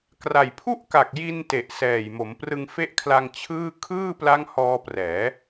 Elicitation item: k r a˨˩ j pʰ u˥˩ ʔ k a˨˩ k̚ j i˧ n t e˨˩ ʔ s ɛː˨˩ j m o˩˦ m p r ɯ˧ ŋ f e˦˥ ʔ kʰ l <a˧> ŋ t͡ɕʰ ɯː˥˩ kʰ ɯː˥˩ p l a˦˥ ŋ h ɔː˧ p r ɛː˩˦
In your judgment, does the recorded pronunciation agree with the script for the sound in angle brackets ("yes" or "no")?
yes